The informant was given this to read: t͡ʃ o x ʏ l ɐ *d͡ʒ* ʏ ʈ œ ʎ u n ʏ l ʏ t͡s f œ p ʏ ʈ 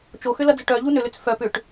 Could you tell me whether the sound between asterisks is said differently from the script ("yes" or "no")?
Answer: yes